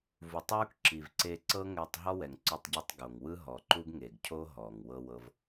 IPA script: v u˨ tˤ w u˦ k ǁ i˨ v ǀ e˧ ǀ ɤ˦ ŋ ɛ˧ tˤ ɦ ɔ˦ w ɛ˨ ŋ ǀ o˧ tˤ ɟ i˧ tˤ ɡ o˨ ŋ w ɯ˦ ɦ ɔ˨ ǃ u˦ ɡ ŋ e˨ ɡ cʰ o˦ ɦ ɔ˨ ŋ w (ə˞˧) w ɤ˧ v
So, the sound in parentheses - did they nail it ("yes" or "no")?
no